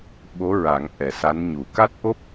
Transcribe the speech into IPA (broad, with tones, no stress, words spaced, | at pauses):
ɓo˧˥ɹa˨˩˦ŋ ʔɛ˨˩˦sa˧˥nɲu˨˩˦ ka˦˥t̚ʔo˦˥p̚